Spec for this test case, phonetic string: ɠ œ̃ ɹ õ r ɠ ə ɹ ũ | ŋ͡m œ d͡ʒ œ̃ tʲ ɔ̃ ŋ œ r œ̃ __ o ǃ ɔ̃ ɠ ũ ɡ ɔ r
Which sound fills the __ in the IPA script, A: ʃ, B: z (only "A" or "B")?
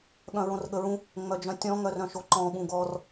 A